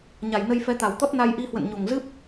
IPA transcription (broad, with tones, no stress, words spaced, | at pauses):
ɲa˨˩jnə˧j fɛ˨˦t̪a˨˩w t̪ɔ˦˥t̚na˧j ʔi˧hwə̰˧˨nɲo˨˩ŋ zɨ˦˥p̚